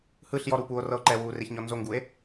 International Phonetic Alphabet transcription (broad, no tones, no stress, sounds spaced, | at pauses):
h ɯ ɬ j ɔ ɾ uː p uː o̯ r ɤ o̯ ǃ ɛ w uː r e ç ɲ ɔ n z o ŋ ɡ u e̯